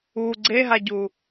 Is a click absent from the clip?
no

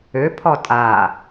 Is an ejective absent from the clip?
no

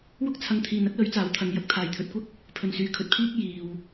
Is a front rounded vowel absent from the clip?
no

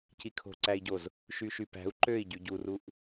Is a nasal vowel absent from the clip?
yes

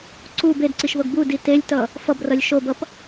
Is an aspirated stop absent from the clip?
yes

